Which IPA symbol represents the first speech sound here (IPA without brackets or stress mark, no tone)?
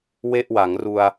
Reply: w